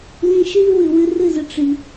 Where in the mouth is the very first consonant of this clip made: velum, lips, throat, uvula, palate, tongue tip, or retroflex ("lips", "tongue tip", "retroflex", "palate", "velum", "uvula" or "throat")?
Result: tongue tip